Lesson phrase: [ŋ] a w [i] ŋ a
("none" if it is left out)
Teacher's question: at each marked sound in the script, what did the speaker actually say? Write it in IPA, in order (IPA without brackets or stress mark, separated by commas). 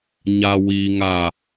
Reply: ɲ, i